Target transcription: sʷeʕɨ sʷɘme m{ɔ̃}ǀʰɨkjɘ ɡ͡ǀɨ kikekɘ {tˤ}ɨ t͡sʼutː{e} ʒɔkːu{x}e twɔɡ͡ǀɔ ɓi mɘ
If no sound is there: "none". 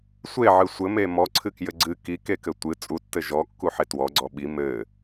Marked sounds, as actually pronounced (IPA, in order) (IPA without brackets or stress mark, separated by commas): ɔ, tʷ, ɘ, ħ